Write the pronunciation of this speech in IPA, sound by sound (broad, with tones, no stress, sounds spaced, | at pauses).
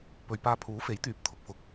p ɵ˨ ɥ p aː˧ pʰ uː˨˥ f e˨˥ j t̪ yː˨˥ p̚ t̪ʰ ʊ˧ k̚ f ʊ˧ k̚